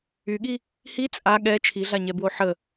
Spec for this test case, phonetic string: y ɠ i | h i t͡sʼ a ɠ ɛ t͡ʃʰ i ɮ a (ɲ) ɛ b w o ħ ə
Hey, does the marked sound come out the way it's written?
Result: yes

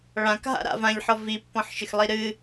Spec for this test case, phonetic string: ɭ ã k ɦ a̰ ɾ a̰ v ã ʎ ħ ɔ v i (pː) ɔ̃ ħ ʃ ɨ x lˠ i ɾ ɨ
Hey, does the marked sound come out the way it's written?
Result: yes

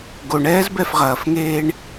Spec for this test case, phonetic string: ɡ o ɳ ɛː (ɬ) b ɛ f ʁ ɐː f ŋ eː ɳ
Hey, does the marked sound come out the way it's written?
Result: no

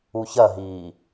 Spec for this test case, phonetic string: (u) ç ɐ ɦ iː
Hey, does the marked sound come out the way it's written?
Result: yes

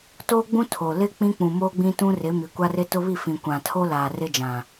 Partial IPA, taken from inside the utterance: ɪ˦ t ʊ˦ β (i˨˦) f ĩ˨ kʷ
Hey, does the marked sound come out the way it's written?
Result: no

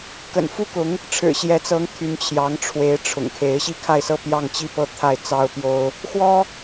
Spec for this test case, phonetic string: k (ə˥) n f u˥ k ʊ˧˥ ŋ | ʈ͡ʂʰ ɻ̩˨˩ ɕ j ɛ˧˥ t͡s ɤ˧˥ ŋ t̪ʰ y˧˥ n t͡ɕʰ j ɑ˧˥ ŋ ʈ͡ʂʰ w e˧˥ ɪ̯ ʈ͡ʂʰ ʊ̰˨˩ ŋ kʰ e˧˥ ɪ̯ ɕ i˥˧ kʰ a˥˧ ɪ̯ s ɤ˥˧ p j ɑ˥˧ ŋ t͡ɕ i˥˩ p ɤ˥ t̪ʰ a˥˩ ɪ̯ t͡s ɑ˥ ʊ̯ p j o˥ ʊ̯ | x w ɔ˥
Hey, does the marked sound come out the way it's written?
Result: no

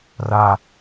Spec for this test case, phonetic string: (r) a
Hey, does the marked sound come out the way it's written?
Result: yes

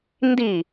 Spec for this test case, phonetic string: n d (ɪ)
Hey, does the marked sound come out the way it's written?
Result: no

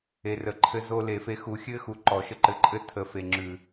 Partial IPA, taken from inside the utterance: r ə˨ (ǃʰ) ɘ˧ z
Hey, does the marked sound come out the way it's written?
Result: yes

